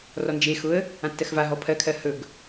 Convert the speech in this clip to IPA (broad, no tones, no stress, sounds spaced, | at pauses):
r ɔ n d͡ʒ e x ʊ ə̯ | ã tː ɜ x v a ɦ ɔ pʰ ɜ kʰ ɜ h ɵ ɡ